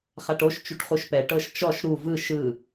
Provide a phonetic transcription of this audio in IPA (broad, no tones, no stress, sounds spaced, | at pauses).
χ a ʈ o ʃ t͡ʃ u ʈ χ u ʃ p ɛ ʈ ɤ ʃ t͡ʃ ɔ ʃ ɾ u v ɯ ʃ ɯ